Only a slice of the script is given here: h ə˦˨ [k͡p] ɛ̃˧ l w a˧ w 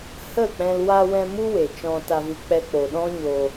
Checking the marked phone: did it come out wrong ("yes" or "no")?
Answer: no